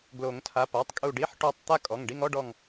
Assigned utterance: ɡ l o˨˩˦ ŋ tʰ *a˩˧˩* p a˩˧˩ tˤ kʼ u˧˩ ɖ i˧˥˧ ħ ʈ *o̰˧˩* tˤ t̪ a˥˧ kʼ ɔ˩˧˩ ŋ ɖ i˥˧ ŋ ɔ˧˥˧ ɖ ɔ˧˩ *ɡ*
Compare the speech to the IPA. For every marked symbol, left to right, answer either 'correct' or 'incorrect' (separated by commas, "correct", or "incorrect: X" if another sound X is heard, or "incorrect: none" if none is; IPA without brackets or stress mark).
correct, incorrect: o˧˩, incorrect: ŋ